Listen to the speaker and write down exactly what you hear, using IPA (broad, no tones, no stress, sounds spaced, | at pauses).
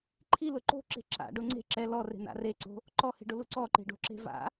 ǃʰ i l ʊ ǃ o̤ ǁ e̤ ǁ a̰ ɖ ʊ ŋ͡ǀ e̤ ǁ ɛ l ɔ r e̤ n a̰ r e ǀ o̤ | ǃ ɔ h e̤ ɖ ʊ l u ǀ ɔ ǃ e̤ ɖ o̤ ǁ e̤ v a̰